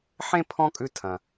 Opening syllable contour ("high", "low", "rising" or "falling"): high